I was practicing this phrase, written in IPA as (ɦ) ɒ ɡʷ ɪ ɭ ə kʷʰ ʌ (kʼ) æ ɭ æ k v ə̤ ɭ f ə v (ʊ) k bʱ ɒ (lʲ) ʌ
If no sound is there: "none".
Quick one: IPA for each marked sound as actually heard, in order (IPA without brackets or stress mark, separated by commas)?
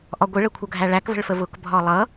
ʔ, ɡʱ, ʊ, lˠ